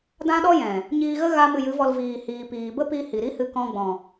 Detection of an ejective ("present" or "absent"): absent